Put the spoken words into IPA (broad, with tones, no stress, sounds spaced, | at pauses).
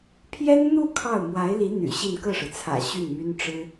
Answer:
pʰ j ɛ˥ n n̪ u˥˧ kʰ ɑ˥˩ ʊ̯ m w a˧˥ ɪ̯ l i˧˥ n̪ y̰˨˩ ɕ i˥˧ n k ɤ˥˩ ʂ ɻ̩˩ t͡sʰ ä̰˨˩ ɕ y˥˩ n m y˥ n ʈ͡ʂ ɻ̩˥